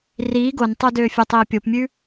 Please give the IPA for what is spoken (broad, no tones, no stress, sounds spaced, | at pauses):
r iː ɡ o n tˤ o d øː fʲ o tˤ iː pʲ o p mʲ ʉ